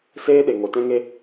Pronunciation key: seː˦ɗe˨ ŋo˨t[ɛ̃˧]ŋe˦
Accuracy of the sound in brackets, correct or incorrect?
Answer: incorrect